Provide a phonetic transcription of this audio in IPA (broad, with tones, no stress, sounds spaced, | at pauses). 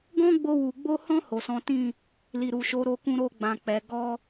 ɡ ɔ̃˦ ɡ͡b o˧ w u˨ ɡ͡b o˧ h ɔ̃˧ h o˨ s ɔ̃˨˦ t ĩ˦˨ | l i˨ ɾ u˨ ʃ o˨˦ ɾ o˧ k ũ˧ ɾ o˧ ɡ͡b ã˨ k͡p ɛ˨ ɡ ɔ˧